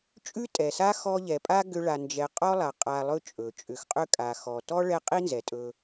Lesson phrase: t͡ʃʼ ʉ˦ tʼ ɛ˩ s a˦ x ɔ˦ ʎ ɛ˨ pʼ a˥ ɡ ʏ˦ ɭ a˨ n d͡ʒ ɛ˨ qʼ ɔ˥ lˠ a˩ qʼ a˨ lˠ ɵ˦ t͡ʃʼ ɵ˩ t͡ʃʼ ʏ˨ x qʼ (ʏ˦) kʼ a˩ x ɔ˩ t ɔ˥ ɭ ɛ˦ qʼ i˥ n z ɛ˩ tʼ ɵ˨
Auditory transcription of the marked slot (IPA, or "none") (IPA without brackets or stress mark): ʏ˥